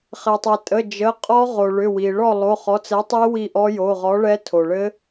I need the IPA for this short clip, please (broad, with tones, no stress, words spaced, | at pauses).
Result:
χɛ˩tˤɛ˩tʼə˩˧˩ d͡ʒə˩˧˩qʼɔ˦˥ʁo˩ɭʏ˩˧˩ wi˩ɭɔ˦˨ lˠo˩˧˩χɔ˩˧˩t͡sɛ˨˥tˤi˦˥ wi˦˨ʔɔ˦˥ jo˩˧˩ʁɔ˨˥ɭɛ˦˥ tʰo˩ɭɘ˦˥